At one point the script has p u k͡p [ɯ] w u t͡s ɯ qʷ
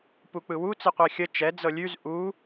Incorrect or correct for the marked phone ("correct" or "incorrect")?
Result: correct